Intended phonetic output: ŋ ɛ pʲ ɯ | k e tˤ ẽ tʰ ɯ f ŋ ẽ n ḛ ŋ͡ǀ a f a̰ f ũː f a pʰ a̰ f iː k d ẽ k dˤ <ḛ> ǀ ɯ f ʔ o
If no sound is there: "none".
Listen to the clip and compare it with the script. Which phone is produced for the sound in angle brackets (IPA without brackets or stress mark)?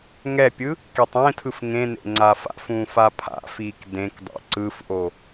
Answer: ḛ